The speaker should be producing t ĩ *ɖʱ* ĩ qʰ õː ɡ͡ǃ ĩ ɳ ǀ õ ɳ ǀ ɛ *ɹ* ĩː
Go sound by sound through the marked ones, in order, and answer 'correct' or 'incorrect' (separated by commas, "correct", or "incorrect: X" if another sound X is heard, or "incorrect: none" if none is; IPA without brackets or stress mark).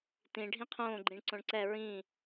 correct, correct